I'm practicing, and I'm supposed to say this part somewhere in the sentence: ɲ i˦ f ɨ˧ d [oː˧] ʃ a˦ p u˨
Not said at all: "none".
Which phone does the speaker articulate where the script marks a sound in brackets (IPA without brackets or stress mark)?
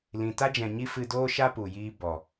oː˦